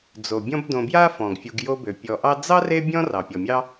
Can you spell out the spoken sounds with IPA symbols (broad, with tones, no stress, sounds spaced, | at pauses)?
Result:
d͡z o˩ bʲ ɔ̃˦ b d õ˨ b j a˥ f ɔ̃˩ ɡ fʲ u˨ ɡ j o˦ b ø˩ pʲ ɔ˨ ʔ ɑ˦ d͡z ɑ˥ r e˦ bʲ ɔ̃˦ r ɑ˩ pʲ ɔ˩ mʲ ɑ˥